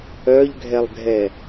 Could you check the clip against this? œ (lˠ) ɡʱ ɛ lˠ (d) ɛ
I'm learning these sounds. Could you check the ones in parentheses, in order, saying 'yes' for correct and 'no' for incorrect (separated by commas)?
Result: no, no